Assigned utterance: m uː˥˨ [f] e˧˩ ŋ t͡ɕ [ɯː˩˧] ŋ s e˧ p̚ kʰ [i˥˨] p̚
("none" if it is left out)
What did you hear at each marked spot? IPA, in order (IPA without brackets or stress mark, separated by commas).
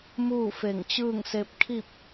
f, ɯː˥˨, i˥˨